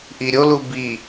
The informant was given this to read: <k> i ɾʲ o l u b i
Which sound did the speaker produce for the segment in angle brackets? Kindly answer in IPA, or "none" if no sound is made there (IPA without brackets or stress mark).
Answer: ʔ